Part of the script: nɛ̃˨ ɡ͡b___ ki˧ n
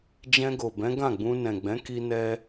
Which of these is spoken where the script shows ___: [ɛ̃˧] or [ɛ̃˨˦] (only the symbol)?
ɛ̃˨˦